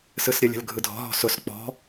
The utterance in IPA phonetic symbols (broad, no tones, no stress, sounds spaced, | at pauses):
s ɯ s ɾʲ ə lʲ ə̤ l ɡʱ ɯ dʱ ɔ̤ ɦ ɔ̤ s ʊ s k͡p ɔ̤